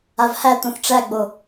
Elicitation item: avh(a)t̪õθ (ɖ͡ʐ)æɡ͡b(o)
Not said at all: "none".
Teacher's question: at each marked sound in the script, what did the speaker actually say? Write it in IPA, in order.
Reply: æ, ʈ͡ʂ, o

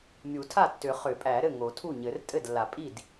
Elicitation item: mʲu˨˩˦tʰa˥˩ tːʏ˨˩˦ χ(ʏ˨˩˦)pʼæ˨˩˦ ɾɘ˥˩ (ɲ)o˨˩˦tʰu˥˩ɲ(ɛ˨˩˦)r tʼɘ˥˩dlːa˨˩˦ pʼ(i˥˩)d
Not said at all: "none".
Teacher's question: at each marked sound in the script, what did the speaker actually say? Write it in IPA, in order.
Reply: ʏ˨˩˦, ŋ, ɘ˨˩˦, i˥˩

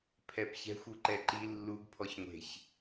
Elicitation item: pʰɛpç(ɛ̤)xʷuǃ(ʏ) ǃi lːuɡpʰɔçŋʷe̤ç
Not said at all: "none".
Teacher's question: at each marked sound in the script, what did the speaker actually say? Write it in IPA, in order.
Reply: ɛ̤, ɛ

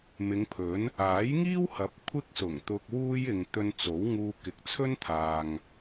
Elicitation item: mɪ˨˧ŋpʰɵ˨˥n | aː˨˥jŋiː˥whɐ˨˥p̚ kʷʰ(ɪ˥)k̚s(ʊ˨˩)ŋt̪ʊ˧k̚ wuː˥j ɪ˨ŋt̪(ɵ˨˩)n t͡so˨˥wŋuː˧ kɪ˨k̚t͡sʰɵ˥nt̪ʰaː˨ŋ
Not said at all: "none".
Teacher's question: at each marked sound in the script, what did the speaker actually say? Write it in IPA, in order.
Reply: ɪ˥, ʊ˨˩, ɵ˧

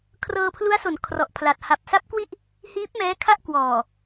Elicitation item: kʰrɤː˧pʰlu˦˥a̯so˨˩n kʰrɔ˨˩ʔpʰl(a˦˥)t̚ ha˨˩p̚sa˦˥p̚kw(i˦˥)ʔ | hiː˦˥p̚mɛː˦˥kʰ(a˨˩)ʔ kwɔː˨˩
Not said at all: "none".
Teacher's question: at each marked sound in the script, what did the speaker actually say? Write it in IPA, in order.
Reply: a˨˩, i˥˩, a˥˩

